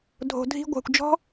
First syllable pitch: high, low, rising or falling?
low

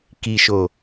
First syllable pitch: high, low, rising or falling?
low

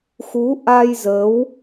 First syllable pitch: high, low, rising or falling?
rising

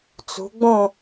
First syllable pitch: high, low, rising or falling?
rising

